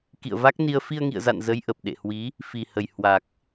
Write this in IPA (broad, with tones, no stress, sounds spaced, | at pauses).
k ḭ˧˨ ə̯ v a˦˥ k̚ n i˧ ə̯ f i˧ ə̯ ŋ ḭ˧˨ ə̯ z a̰˧˨ n z ə˨˦ j ʔ ə˨˩ p̚ ɗ ḛ˧˨ h w i˨˦ | f i˨˩ h ə˨˩ j h w a˨˩ k̚